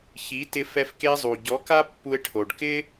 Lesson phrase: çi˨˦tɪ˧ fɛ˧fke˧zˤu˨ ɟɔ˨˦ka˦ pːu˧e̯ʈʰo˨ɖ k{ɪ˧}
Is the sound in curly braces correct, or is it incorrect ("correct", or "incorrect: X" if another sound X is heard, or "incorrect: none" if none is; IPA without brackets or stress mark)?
incorrect: ɪ˦